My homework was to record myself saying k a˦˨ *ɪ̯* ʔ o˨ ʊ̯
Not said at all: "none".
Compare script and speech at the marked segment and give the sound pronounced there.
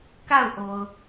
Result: ʊ̯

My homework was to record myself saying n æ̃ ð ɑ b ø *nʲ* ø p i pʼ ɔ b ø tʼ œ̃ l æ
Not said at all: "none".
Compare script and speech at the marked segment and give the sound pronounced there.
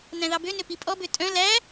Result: n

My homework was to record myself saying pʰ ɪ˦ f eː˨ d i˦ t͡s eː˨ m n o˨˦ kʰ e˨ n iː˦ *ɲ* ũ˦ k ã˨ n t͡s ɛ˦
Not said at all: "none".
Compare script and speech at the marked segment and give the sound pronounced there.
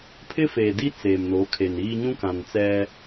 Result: ɲ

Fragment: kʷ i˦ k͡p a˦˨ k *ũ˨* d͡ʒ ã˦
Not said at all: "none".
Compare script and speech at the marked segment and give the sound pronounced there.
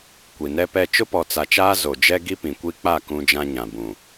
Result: ũ˦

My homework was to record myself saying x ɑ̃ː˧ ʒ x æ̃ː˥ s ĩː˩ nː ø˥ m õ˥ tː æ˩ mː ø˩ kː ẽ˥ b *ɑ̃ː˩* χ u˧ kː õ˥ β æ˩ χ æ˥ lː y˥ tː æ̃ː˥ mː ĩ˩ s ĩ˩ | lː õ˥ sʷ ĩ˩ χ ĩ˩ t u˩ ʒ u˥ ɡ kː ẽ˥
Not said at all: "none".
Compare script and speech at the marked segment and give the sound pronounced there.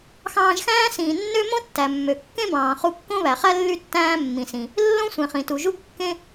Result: ɑ̃ː˩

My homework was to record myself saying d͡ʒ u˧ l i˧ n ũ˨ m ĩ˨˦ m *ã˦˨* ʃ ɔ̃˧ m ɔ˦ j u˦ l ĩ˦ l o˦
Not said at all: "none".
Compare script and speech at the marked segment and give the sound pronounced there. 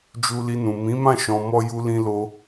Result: ã˦˨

